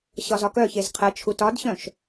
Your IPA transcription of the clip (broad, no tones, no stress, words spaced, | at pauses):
ɕɒzɒkœçez qʰət͡ʃʰut ɒdɕœ̃ʃ